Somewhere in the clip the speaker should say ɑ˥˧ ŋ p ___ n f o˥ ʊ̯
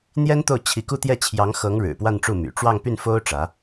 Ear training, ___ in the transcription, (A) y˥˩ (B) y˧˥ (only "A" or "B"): A